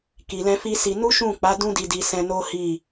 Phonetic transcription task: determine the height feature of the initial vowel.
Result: high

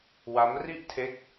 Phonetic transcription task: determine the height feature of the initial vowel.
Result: low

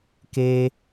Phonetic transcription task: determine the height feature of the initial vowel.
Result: mid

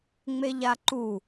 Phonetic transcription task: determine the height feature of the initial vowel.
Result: mid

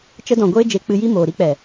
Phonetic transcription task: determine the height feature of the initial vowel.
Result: mid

